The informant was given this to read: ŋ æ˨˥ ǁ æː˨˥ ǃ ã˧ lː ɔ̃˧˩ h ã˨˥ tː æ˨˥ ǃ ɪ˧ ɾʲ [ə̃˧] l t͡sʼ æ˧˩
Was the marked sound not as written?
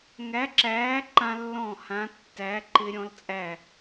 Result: yes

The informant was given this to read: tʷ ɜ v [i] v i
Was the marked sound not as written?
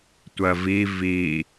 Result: no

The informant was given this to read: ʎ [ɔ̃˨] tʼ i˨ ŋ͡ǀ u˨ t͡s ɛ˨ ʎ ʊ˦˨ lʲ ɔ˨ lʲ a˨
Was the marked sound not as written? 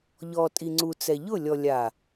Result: yes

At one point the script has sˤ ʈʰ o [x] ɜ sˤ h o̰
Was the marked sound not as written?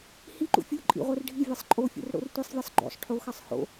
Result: no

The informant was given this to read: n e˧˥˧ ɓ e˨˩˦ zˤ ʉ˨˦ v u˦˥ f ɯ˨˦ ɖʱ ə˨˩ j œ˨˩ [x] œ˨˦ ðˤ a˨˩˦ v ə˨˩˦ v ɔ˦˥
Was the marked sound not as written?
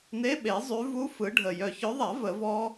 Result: yes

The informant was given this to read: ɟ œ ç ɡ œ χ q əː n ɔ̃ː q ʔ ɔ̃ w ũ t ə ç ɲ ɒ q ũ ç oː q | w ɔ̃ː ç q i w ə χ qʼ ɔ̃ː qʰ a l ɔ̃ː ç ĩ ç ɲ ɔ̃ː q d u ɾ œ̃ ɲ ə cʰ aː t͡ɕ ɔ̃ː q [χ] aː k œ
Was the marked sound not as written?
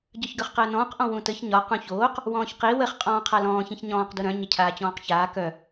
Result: yes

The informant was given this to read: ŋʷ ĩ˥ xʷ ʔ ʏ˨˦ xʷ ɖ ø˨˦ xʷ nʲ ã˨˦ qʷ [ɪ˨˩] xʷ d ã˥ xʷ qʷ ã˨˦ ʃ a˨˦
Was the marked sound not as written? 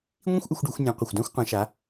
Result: no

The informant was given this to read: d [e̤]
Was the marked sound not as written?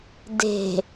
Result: no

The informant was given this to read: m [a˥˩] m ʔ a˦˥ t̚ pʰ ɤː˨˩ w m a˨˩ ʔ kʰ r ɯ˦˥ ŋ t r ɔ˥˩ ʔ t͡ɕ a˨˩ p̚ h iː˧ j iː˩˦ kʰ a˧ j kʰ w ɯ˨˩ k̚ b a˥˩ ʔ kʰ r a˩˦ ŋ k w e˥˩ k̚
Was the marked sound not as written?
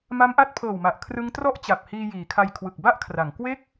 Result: yes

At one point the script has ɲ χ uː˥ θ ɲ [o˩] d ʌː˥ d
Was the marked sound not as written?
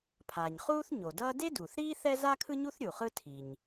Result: no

